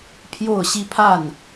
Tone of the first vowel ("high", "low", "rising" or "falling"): falling